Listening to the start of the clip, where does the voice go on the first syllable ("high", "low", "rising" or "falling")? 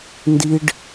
high